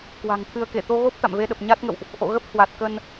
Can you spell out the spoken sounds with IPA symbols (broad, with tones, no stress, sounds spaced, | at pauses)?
k w a̤˨˩ ŋ t̪ʰ ɨ˧ ə̯ k e˧˩ t̪ o˧ ɣ o˦˥ p̚ t̪ a̰˧˨ m v e˧ ɗ ə˨˩ p̚ ɲ a˦˥ t̚ ŋ ə̰˧˨ w ʔ | ʔ o̰˧˨ ɣ ə˦˥ p̚ h w a˨˩ t̚ k ə˧ n